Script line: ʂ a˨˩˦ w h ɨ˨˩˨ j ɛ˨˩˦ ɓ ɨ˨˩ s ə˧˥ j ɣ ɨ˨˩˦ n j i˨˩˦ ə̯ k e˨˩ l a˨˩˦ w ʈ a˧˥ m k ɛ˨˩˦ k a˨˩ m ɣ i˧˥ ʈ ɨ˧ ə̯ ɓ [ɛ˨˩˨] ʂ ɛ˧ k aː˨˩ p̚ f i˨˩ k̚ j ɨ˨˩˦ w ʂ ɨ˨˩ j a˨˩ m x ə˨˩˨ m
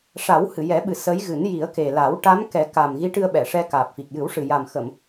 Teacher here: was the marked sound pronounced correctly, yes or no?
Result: yes